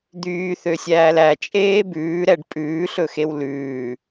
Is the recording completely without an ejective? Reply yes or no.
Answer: no